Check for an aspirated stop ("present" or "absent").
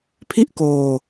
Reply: present